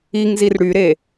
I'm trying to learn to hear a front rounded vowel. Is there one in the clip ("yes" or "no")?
yes